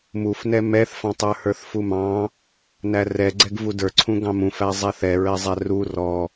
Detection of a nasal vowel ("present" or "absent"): present